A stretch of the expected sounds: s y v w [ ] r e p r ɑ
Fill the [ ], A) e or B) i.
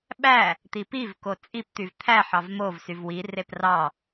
B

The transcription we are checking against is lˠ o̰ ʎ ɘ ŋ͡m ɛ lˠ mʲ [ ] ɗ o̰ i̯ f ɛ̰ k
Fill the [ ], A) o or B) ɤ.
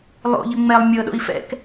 B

